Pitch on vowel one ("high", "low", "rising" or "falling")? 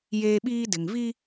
high